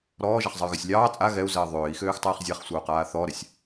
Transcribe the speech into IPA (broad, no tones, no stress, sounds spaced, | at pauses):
ɾ ɔː ʒ a χ zˤ ɜ y̯ ɣ ɜ sʲ lʲ ɑː t͡sʼ a ɣ ɛ u̯ z ɜː ðˤ øː i̯ x øː x tˤ ɜː χ zʲ a χ sʷ ɑ u̯ q aː θ ɔ ɾ ɛ sʲ